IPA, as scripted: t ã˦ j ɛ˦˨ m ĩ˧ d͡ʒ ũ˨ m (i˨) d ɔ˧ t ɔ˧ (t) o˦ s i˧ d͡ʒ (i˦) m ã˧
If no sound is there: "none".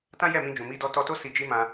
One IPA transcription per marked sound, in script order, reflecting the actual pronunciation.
i˧, t, i˦

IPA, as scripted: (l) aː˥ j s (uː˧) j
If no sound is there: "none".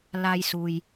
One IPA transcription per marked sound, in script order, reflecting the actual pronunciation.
l, uː˧

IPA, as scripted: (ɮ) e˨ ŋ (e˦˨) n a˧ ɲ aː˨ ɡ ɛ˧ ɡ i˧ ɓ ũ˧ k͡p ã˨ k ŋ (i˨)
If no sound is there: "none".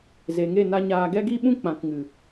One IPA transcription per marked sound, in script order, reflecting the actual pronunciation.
z, e˦˨, ɨ˨

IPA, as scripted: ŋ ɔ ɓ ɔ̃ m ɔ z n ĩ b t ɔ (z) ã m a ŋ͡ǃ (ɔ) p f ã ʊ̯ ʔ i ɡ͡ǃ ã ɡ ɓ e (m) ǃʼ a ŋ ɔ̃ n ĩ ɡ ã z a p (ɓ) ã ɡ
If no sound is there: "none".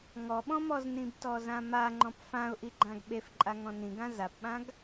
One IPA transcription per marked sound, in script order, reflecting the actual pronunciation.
z, ɔ̃, f, ɓ

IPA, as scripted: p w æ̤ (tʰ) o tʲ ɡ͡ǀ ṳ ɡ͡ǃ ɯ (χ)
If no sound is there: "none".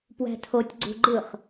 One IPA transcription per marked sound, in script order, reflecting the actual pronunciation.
tʰ, χ

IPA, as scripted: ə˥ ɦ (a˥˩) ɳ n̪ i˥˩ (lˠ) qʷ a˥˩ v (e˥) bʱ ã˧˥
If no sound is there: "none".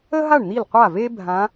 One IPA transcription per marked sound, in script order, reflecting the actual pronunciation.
a˥˩, l, e˥

